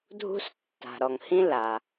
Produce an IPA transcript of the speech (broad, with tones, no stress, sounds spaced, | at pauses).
dʱ ṳ˦ s tː a̤˩ ɾ ɔ˩ ŋ h ĩ˦ l a˩